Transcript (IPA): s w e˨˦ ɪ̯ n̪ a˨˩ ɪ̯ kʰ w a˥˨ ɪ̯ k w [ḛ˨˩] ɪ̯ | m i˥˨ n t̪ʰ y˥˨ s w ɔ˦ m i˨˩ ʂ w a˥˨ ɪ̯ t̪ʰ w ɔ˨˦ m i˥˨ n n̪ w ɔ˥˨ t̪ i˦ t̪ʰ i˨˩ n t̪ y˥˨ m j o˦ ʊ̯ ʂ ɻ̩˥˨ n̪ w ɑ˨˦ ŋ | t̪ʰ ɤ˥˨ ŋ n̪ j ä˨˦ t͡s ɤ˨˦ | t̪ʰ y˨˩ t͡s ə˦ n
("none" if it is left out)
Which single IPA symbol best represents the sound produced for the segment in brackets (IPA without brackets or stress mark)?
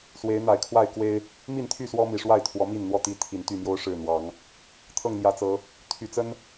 e˦